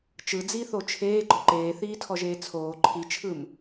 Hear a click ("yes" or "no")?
yes